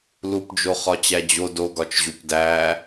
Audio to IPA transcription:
l u p d͡ʒ o χ ɒ t͡ɕ æ d͡ʑ o d o ɡ ɒ t͡ʃ ʑ u p d æ

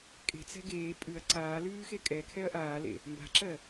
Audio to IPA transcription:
kʼ e̤ t͡s ɛ̤ ɡ eː pʼ ʉ ɐ̯ ǀ aː l ʉː x e kʼ ɛ kʰ ɛ ɐ̯ ʔ aː l ḛ | m b a̤ ǁ ɜ

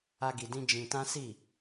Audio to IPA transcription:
a˦ ɡ i˧ d ĩ˦ d͡ʒ ĩ˧ t ã˦ s i˦˨

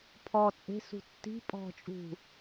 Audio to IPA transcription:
pʰ ɔ t͡sʼ e̤ s ṳ tː i̤ pʼ ɔ̤ t͡ʃʼ ṳ

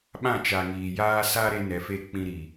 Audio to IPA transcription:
ɓ ã˦˨ t͡ʃ a˨ ŋ iː˨ j aː˦ s a˦ ɾ e˦ n ɛ˨ f e˦˨ k͡p ĩ˦ ɾ i˨

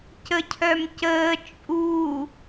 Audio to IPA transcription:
c ə cʰ œ m c əː t͡ʃʼ u

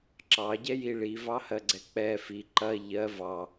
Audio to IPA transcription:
ǁ ɑ ɟ ɛ j i ɭ i v ɑ h ɜ ɡ͡ǀ ɛ k͡p ɛ f i ǃ ɐ ʎ ɜ v ɑ

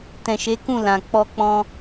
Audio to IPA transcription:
t ɛ̃˨ ʃ e˨˦ k ũ˦˨ l ã˨ k͡p ɔ˧ k͡p ɔ̃˧

